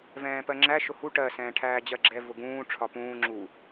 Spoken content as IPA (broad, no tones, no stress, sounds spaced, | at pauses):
v ɛ̃ː p ɜ ŋ͡ǁ æ ʃ ʊ h u ʈ ɜ s ɛ̃ː ʈʰ æː d͡ʑ ɜ ɡ͡ǁ ɛ v ʊ ɡ ũː ʈ͡ʂʰ ɒ p ũː ŋ͡ǁ u